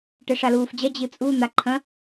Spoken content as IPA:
ʈ ɛ ʂ a l uː f d͡ʑ ɐ d͡ʑ ɨ t͡sʼ u n̪ a ǃʰ ɐ̃

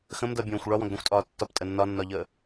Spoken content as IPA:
x ə̃ m d ʌ bʲ õː xʷ ɭ ɒ w ɔ̃ ɡ d ɔ̃ xʷ tʼ ɒː tː ɒ p tʼ ə nː ɒ nː ɒ ʎ əː

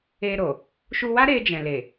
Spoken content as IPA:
e˧ ɾ o˨ | ʃ u˧ w a˦ ɾ e˧ d͡ʒ ɛ̃˨ l e˨

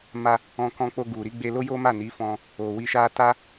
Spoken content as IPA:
m a˧ | ɔ̃˧ k ɔ̃˧ k͡p o˧ ɡ u˨ ɾ i˨˦ ɡ͡b e˧ l o˦ j o˦ m a˦˨ n i˨˦ f ɔ̃˧ | o˨ w i˧ ʃ a˦ t a˦

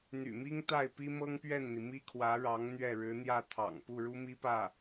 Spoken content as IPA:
n̪ y̰˨˩ m i˥ ŋ t̪ a˥˩ ɪ̯ p i˥ m ɤ˥ ŋ p ɥ ɛ˥˩ n n̪ i˩ m i˥ kʰ w ä˧˥ ɻ ɑ˧˥ ŋ n̪ ɥ ɛ˥˩ ɻ ɻ̩˧˥ n̪ j ä˥˩ t̪ʰ ɑ̰˨˩ ŋ p u˥˩ ɻ u˥ m i˥ p ä˥˩

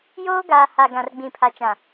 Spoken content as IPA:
j oː˦ ɡ aː˨ h a˨ ɡ ã˨ r ɡ͡b ĩ˨ pʰ a˨ t͡ʃ ã˨

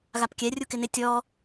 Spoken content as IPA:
ɣ a p kʲ ɛ rʲ u k ɪ n ɪ tʲ ɔ

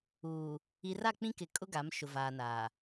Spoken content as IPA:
uː˨ | i˨ r a˦˨ k͡p ĩ˦ k ɪ˨ kʼ ʊ˦ ɡ a˨˦ m ʃ ʊ˨ v aː˨ n aː˨

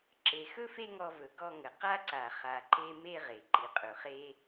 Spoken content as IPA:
ǁ e˨ x ɵ˦ f e˦ ŋ ɔ˧ v ɵ˨ ɡ ɔ˦˨ ŋ ə˨ q a˦ ǀ a˨ χ a˨ ǃ e˧ m e˦ ʁ e˨ ǃ i˨ qʼ ɵ˨ χ e˦

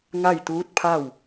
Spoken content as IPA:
ŋ a˥˨ j t̪ uː˧˥ t̚ pʰ a˥˨ w

